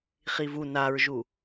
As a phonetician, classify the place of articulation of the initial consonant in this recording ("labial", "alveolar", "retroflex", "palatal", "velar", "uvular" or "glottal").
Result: uvular